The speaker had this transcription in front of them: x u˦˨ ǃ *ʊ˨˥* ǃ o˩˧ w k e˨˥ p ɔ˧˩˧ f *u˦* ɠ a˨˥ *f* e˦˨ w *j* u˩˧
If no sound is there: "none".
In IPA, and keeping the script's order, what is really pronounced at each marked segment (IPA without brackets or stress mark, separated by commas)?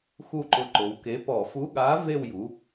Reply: ʊ˨˥, u˨˥, v, j